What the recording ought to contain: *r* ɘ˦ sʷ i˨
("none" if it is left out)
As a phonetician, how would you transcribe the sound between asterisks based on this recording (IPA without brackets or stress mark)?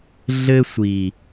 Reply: ɮ